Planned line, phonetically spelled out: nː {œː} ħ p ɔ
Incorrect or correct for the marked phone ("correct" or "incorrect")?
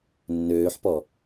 incorrect